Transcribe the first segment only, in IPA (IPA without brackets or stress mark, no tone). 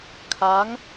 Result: kʰ